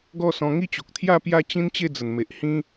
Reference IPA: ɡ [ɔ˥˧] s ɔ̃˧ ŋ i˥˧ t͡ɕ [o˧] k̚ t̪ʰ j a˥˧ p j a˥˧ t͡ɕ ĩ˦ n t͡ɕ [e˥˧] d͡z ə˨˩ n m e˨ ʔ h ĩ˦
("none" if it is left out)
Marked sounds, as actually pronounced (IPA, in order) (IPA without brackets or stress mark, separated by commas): ɔ˥˧, o˨, e˥˧